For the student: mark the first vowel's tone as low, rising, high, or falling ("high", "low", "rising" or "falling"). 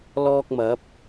high